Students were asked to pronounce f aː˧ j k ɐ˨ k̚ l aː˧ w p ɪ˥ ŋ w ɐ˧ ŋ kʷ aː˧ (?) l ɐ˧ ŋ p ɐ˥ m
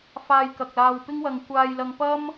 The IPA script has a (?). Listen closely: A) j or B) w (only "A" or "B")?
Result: A